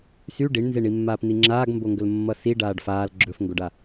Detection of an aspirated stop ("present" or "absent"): absent